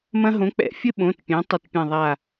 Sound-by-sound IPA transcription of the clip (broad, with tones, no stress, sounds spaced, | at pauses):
m ɐ̃˦ ɦ õ˨˥ k͡p ɛ̰˧˩˧ fʲ ɘ˦ ɓ õ˩˧˩ t pʲ ɛ̃˩˧ tˤ ɘ˧˩ t pʲ ã˧˩ ðˤ a˧˩